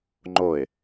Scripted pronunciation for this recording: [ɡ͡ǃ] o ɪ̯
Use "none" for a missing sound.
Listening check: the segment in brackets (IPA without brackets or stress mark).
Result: ŋ͡ǃ